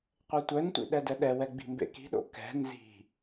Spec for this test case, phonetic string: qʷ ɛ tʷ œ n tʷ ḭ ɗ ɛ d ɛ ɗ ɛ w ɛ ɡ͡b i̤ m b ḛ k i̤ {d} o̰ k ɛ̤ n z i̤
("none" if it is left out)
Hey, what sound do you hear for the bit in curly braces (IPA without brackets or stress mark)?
ɗ